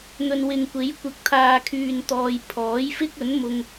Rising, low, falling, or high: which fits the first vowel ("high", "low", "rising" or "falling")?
low